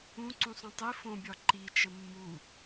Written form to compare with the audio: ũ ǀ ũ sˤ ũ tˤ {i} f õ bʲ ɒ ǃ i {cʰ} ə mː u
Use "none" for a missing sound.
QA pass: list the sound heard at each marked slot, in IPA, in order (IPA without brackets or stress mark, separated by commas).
i, t͡ʃ